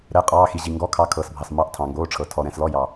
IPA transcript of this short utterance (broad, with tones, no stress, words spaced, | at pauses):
ɾɛ˩˧˩qʼɑː˩˧˩xi˩ ʑi˩ŋɡɔ˩˧˩kʰɑ˩˧˩ kʰɤː˩sbʱɑ˩smɑ˩˧˩ʔ tʰɑ̃˩ŋɡoː˩˧˩ʈ͡ʂʰɤ˩ tʰɔ˩ɾɛ̃˩slɔ˩˧˩jɑ˩